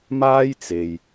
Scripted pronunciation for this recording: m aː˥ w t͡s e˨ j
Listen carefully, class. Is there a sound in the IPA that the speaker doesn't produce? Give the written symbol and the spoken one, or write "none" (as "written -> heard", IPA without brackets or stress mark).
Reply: w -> j